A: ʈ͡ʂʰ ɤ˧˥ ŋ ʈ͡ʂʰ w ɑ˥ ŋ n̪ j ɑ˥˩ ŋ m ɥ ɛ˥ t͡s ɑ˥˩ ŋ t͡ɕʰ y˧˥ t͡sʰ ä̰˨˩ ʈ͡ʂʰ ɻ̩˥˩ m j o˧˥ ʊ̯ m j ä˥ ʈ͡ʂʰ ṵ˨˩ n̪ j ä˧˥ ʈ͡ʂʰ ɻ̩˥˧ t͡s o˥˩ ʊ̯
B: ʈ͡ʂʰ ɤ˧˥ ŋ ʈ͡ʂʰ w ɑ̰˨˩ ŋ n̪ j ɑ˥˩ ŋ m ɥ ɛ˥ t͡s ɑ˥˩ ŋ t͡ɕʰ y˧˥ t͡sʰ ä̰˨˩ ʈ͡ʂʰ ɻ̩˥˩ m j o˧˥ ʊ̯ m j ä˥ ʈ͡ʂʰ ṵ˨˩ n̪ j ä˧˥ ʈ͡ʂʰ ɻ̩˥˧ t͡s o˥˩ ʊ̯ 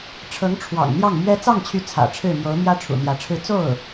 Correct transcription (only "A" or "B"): B